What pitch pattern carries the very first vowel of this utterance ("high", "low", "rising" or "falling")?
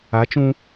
rising